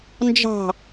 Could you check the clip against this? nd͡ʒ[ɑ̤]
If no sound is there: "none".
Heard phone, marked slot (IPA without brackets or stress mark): ɑ̤